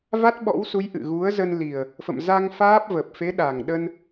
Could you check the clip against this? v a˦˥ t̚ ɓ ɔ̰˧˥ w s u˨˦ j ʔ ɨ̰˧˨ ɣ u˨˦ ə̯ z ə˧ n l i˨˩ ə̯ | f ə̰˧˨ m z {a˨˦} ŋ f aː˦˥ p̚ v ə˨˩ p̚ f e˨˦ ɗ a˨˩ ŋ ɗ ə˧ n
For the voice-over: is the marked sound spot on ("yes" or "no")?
no